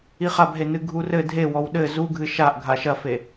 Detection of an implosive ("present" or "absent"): present